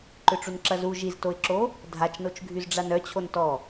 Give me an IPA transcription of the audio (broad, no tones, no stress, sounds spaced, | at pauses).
ǃ ʏ ʈ͡ʂ u n ǁ ɐ z u ʒ i z t o ɪ̯ ǁ o | dʱ a t͡ʃ n o t͡ʃ ɡʱ y z ɖ͡ʐ a n œ t͡ɕʰ o n t ɔ